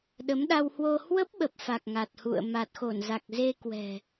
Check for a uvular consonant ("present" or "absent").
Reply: absent